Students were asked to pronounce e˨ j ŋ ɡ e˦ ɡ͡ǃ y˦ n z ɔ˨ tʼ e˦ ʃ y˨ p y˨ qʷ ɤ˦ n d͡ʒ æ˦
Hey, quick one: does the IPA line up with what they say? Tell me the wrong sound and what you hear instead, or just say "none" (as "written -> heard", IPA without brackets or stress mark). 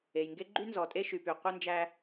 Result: none